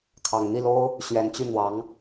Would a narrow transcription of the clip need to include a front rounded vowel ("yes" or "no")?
yes